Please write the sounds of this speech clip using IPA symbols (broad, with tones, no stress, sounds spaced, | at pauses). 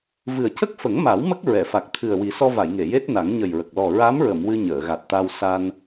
v ɨ˨˩ ə̯ c ə˦˥ k̚ f ə˨˩˦ ŋ m a˨˩˦ w m ə˦˥ k̚ ɹ ɛ˨˩˨ f a˨˩ k̚ t̪ʰ ɨ˨˩ ə̯ w i˨˩˦ s ɔ˧ v a˨˩˨ j ŋ e˨˩˨ j e˦˥ t̚ n a˨˩˦ ŋ ɲ ə˨˩ j ɹ ə˨˩ k̚ l ɔ˨˩ ɹ a˧˥ m ɹ ə˨˩˨ m w ɨ˧ ɲ əː˨˩˨ ɣ a˨˩ t̚ t̪ a˧ w s a˧ n